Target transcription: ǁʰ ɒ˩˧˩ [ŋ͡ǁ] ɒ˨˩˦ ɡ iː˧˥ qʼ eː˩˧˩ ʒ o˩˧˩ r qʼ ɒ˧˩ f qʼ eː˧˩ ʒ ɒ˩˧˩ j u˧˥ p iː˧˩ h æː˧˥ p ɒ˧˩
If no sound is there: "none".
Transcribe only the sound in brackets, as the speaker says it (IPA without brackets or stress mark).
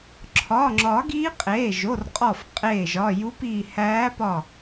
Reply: ŋ͡ǁ